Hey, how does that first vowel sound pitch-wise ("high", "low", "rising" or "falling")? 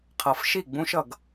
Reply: low